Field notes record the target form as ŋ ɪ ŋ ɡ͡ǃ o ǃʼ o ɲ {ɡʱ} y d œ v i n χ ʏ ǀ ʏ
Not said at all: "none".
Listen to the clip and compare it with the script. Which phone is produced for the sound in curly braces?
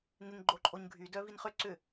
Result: ɡʱ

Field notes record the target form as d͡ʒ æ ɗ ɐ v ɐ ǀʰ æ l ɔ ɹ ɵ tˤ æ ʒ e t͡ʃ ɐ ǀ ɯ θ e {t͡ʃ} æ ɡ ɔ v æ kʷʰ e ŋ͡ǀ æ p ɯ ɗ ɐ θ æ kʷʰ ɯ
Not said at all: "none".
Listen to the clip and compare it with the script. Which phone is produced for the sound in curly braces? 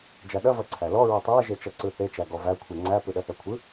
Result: t͡ʃ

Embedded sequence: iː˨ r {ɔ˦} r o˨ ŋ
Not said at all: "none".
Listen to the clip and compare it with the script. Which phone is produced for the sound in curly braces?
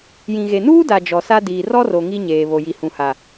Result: ɔ˦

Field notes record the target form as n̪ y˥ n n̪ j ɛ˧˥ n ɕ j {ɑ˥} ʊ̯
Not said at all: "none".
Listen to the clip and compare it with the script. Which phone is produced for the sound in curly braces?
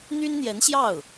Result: ɑ˥˩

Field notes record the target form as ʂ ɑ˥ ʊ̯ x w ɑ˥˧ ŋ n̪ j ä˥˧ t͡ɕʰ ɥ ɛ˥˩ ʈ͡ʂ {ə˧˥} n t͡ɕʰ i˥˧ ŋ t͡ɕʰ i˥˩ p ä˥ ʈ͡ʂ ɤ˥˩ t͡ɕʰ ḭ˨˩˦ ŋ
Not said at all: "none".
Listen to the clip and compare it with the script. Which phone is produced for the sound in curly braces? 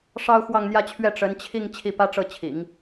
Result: ə˧˥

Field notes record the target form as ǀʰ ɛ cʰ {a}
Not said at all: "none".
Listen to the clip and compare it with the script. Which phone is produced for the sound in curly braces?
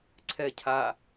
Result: a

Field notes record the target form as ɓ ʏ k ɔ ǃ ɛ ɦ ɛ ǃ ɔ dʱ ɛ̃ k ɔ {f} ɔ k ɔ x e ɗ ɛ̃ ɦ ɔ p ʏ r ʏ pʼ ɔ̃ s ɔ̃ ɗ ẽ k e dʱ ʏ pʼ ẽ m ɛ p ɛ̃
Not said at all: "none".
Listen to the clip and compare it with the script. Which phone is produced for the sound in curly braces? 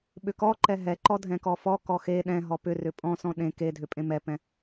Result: f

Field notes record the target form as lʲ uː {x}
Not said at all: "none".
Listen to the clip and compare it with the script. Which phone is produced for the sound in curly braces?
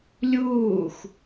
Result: x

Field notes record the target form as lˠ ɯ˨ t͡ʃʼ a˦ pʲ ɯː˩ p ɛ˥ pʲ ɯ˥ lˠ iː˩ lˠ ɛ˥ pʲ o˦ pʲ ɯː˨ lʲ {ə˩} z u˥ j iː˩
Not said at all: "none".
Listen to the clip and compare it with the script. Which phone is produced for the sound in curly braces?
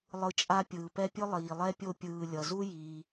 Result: ʌ˩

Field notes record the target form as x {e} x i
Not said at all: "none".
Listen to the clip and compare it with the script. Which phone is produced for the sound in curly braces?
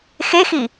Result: e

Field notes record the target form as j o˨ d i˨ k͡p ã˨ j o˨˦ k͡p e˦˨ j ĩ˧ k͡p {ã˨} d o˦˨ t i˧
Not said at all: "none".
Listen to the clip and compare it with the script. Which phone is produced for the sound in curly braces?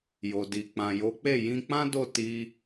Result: ã˦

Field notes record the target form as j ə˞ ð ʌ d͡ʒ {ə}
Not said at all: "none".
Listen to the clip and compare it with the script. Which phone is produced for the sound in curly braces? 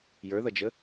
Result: ə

